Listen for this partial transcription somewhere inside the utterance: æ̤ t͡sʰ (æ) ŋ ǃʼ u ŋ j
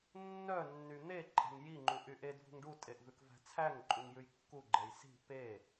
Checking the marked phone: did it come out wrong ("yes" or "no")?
no